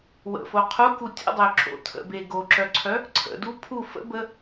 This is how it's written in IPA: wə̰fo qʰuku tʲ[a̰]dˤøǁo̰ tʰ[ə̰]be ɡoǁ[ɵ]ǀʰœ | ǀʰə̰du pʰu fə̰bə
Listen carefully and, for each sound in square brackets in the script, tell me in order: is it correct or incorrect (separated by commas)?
incorrect, correct, incorrect